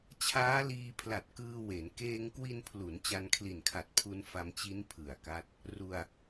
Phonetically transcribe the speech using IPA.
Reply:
t͡ɕʰ aː˦˥ l iː˧ pʰ l a˨˩ t̚ k ɯː˧ w e˩˦ n k eː˧ ŋ k w i˧ n pʰ l u˩˦ n t͡ɕ a˧ n kʰ l i˨˩ n kʰ a˨˩ t̚ pʰ u˧ n f a˧ m t͡ɕ i˦˥ n pʰ ɯ˨˩ a̯ k a˦˥ t̚ | r u˧ a̯

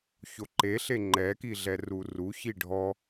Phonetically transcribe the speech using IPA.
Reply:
ç o ǃ e ɬ e ŋ͡ǃ ɛ k i ɮ ɛ r u r u ç i ɖʱ ɔ

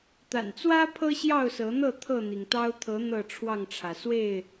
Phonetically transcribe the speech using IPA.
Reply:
t̪ a̰˨˩ n t͡s w ä˦ pʰ ɤ˦ ɕ j ɑ˥˨ ʊ̯ s ɤ˨˦ n̪ ɤ˥˨ t̪ʰ ɤ˥˨ n̪ i˩ ŋ t̪ ɑ˦ ʊ̯ t̪ʰ ɤ˨˦ n̪ ɤ˥˨ ʈ͡ʂʰ w ɑ˥˨ ŋ ʈ͡ʂʰ ä˩ s w e˥˨ ɪ̯

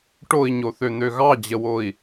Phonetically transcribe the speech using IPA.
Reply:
ʈ o i̯ ɲ o θ ø n̪ ø ɣ ɑ d͡ʑ ə w o i̯

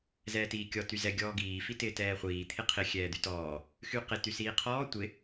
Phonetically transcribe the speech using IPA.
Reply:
z ɛː t iː kʲ ɔ t y z ɛ ɡʲ ɔː ɡ iː f i t ɪː t ɛː χʷ iː t̪ʰ ɪ qʰ ɪ xʲ ɛː d̪ y t ɔː | x y q ɪ t y s iː qʰ ɔː tʷ ɪ

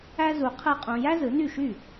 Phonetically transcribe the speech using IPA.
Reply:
æ˥ z u˧ qʰ ɯ˥˩ qʼ ũ˧ j æ˥ z ɯ˩˥ n y˥˩ ʃ y˥˩

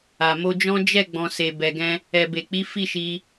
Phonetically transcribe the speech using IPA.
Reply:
a˨ m o˧ d͡ʒ ɔ̃˦ d͡ʒ ɛ˦˨ ɡ͡b ɔ̃˨ s e˨ b ɛ˨ ɡ ɛ̃˧ | ɛ˨ b e˨ k͡p i˨˦ f i˦˨ ʃ i˧

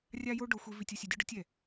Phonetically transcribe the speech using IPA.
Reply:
rʲ a˥ j o˥ ɖ o˧ xʷ i˧ v i˧ tʲ o˧ sʲ ɛ˧ dʲ ʊ˥ ɖ ʊ˥ tʲ ɛ˩

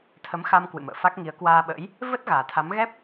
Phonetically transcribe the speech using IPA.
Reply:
t̪ʰ ə˨˦ m x a˧ m k w ɨ̰˧˨ m ə̰ː˧˨ f a˦˥ k̚ ŋ i˨˦ ə̯ k w aː˧ ɓ ə̰˧˥ j | v ə˦˥ t̚ ɣ aː˨˩ t̪ʰ a˨˦ m ɣ ɛ˦˥ p̚

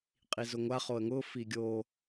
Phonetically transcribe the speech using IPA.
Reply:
qʼ i z ʊ ŋʷ a χ o ə̯ ŋ ʊ f i ɡʲ o

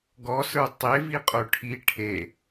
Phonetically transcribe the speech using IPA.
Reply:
ɡ ɔ s ə˞ tˤ e v i qʼ o ʈʰ i ʈʰ e

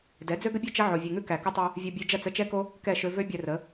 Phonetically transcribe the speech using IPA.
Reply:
d ɛ˨˦ d͡z ø˦ ɡ ə˦ bʲ ø˦ t͡ʃ ɐ˦ ʕ o˨ vʲ ʉ˨ ŋ ʉ˦ k æ˨ k ə˦ tˤ ʉ˧ | vʲ ɐ˧ bʲ ø˧ d͡ʒ ɐ˦˨ t͡s ə˧ t͡ʃ ɛ˦ k o˦ | k ɛ˦˨ ʃ ø˧ v ø˦ bʲ ɛ˧ r ə˨˦

